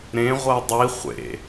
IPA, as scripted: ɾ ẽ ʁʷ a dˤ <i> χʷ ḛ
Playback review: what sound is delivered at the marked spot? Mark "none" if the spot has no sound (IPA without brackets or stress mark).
i